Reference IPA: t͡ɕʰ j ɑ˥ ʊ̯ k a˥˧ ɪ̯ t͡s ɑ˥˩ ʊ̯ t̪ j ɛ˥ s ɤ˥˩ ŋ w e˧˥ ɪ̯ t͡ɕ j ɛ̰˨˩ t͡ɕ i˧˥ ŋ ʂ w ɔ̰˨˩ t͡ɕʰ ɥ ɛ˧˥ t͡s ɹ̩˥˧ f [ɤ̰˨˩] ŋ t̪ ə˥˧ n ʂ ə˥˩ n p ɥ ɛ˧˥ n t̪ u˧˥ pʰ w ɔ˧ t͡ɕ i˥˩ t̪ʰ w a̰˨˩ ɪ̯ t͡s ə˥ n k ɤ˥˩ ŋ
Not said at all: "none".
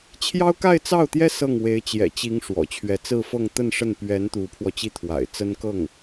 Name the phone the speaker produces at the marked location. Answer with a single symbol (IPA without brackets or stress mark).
ɤ˥˧